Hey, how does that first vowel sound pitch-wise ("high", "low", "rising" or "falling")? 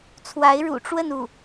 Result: rising